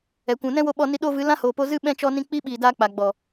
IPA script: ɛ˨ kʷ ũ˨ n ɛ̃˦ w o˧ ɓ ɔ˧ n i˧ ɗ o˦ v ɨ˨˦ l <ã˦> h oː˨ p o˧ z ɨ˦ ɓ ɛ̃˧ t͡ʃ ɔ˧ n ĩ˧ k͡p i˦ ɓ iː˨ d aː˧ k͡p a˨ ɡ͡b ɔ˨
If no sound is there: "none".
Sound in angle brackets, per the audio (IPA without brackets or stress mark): ã˦